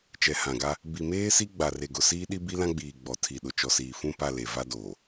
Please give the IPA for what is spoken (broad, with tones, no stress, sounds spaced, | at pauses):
t͡ʃ ɛ˨ h ã˨ ɡ a˦ | b i˨ m eː˦ s i˦ ɡ͡b a˨ r e˨ ɡ ʊ˨ s iː˦ ɗ i˦ b i˦ l ã˦ ɡ͡b iː˨ ɡ͡b ɔ˨ tʰ i˨ ɗ ʊ˨ t͡ʃ ɔ˨ s iː˨ f ũ˦˨ p a˦˨ l e˨ v a˦ d oː˨